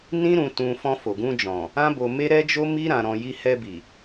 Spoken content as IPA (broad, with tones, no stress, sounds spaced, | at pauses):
n ĩ˦ ɾ ũ˧ t ũ˧ f ɔ̃˧ f o˨ ɡ ũ˧ d͡ʒ ɔ̃˨ | ã˦ b o˧ m e˦ ɾ ɛ˦ d͡ʒ o˦ m i˦ ɾ ã˧ ɾ ɔ̃˧ j i˧ h ɛ˧ b i˨